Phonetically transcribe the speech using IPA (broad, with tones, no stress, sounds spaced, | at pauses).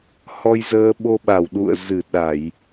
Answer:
h ɔ˧ j z əː˧ ɓ o˧ ɓ a˧˩ w ɗ ṵ˧˨ ə̯ z ɨ˧˩ ɗ a˧˩˨ j